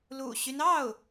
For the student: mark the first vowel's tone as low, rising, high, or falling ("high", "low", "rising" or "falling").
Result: low